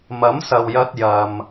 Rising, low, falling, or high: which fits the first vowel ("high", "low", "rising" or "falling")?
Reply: rising